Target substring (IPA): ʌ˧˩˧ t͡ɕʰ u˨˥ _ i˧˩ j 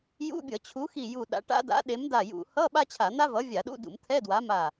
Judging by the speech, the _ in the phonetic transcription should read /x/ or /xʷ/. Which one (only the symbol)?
x